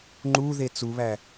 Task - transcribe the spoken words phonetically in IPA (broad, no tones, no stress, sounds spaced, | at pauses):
ŋ͡ǃ u ð e t͡s u β æ